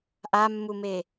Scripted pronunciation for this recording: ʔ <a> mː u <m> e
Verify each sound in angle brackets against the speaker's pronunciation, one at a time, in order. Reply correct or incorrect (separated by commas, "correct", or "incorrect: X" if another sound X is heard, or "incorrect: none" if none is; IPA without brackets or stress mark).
correct, correct